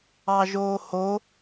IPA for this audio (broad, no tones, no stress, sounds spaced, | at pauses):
ɑ ʒ oː h o